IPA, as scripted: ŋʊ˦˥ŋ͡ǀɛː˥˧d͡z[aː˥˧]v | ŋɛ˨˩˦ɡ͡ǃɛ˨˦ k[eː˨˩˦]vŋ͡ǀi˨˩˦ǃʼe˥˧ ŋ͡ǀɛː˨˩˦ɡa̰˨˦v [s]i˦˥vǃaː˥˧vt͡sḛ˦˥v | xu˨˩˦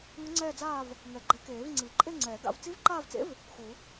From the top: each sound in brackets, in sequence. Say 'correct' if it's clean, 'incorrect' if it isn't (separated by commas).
correct, correct, incorrect